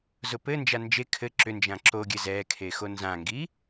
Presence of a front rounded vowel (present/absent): present